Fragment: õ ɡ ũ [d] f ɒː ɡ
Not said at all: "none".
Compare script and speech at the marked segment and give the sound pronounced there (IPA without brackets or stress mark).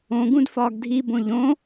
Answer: d